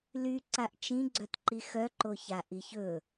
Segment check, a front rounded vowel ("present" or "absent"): present